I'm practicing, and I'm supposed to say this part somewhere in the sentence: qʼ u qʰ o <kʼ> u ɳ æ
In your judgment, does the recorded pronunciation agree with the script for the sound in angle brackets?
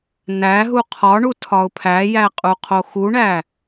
no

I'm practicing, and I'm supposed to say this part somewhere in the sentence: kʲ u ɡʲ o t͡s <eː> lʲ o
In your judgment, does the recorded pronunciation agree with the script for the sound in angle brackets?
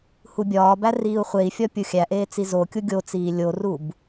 no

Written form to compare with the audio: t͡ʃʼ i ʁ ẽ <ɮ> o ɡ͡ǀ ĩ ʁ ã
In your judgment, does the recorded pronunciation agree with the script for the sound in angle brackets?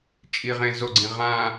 no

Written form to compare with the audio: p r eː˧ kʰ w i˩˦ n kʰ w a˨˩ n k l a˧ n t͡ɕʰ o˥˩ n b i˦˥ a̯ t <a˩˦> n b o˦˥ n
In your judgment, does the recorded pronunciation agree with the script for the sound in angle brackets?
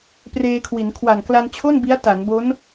yes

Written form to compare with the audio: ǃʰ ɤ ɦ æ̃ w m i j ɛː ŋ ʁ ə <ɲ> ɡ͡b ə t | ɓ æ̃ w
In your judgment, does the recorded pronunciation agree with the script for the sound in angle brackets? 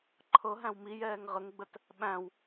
no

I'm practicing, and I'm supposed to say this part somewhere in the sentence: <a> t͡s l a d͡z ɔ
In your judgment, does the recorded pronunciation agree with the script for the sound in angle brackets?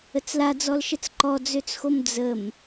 no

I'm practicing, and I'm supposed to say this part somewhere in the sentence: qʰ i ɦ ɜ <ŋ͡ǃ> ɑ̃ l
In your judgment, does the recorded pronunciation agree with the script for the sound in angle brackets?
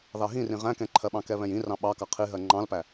yes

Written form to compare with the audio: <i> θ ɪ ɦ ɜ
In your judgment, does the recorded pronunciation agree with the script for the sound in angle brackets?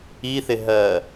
yes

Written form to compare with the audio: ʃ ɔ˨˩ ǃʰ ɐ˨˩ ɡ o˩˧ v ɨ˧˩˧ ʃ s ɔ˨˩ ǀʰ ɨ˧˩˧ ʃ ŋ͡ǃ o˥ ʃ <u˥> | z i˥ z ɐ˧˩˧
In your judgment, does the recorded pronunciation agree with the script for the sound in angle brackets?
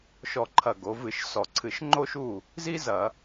no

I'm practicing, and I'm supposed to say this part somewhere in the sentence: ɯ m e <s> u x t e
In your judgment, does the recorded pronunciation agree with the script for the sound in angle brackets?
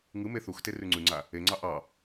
no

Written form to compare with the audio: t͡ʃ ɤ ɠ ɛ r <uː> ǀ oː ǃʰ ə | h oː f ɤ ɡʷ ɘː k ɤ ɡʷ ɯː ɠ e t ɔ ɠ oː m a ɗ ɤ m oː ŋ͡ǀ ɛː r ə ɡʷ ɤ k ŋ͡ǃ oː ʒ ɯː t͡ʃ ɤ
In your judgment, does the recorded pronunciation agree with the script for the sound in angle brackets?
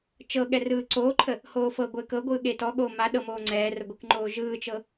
no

